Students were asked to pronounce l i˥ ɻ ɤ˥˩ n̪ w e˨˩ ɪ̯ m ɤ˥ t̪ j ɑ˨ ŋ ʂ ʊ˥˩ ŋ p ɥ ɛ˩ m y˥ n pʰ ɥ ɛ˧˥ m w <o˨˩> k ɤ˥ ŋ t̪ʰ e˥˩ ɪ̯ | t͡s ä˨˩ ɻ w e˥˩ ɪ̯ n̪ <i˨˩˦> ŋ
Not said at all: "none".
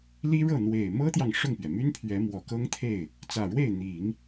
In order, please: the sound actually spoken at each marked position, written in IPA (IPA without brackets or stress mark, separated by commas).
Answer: ɔ˨˩, i˨˩˦